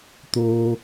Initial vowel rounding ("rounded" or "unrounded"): rounded